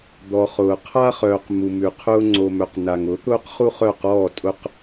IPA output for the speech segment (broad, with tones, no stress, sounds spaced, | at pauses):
d̪ ɔ˨ χ ʊː˨ qʰ a˦ χ œː˨ q m u˨ m ʉ˨ qʰ ʊː˦ ŋ͡ǀ o˨ m œ˨ q n a˨ ŋ ʊ˨˦ t̪ ʊː˦ q χ u˦ χ œ˦˨ q ɔː˦˨ tʼ ʊ˦ q